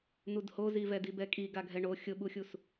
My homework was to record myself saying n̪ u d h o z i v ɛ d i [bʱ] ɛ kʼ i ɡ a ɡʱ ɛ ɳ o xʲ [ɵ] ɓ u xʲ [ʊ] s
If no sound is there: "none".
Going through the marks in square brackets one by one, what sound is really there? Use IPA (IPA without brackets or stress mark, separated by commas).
b, ʊ, u